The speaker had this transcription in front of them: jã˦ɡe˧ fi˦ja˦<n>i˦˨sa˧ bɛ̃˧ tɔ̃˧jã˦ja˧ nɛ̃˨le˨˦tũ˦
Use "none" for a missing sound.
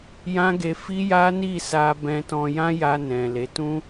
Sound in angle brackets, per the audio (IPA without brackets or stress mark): n